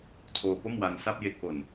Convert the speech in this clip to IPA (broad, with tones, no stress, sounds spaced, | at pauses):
tʰ oː˧ p o˥˩ m w a˧ n s a˥˩ p̚ j e˦˥ k̚ ʔ o˨˩ n